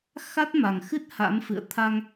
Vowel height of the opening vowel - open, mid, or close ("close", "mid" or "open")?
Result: open